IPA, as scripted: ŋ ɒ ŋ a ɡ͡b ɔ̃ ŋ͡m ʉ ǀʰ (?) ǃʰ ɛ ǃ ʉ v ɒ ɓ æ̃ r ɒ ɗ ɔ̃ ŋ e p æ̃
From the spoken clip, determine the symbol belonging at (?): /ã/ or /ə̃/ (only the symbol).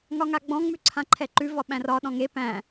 ã